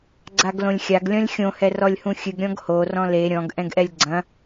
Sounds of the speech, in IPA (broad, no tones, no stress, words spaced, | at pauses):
ɡ͡ǀaɡlõlʲxʲaɡ lʲɔ̃lʲxʲõ hɛrɔlʲhũxʲɨɡ ɾʲɔ̃ɡho rɔ̃le ɾʲɔ̃ɡ ʔɛ̃ɡʔɛlʲɡ͡ǀɐ̃